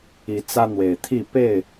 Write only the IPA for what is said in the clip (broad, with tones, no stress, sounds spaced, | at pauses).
i˨˦ t͡s ä˦ n̪ w e˨˩ ɪ̯ t̪ʰ i˥˨ p e˥˨ ɪ̯